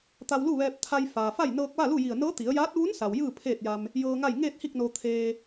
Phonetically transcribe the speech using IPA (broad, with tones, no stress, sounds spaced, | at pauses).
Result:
t̪ a˧ w l u˥˨ ʋ ɛː˧ p̚ t̪ʰ a˧ j f aː˩ f a˥˨ j n ɤː˧ k̚ ʋ a˥˨ l u˥˨ j i˧˩ ə̯ n ɤː˧˥ t̪ i˩˧ ə̯ j aː˧˥ t̚ ʋ u˧˥ n s a˩ w j ɯː˥˨ pʰ eː˥˨ t̚ j a˧ m | j ɤː˧ ŋ a˥˨ j ŋ eː˥˨ t̚ h i˥˨ k̚ n o˧ t̪ʰ eː˧